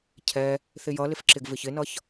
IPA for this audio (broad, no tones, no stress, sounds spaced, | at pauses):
cʰ ɛ | θ ɪ j ʌ l ɪ f ǁ ɪ ɡ v ɪ ç ɪ n ʌ ç